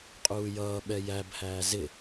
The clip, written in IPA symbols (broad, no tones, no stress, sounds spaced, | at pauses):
qʼ uː j ʌː ɓ ɛ j æ b h æː z ɪ